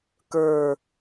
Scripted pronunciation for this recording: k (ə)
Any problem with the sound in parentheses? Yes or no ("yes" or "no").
yes